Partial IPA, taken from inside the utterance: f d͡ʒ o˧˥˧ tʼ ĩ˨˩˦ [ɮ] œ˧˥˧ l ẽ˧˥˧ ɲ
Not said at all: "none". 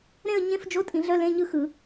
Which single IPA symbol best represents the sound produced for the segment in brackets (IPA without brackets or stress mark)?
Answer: ɮ